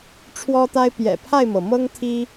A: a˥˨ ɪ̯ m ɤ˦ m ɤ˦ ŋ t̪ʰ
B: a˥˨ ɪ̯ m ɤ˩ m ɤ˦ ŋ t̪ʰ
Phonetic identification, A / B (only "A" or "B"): B